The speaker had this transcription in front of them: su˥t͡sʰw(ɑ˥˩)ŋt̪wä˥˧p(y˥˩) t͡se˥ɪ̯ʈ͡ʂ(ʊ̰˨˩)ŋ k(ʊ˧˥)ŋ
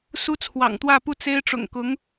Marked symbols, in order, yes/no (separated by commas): no, no, yes, yes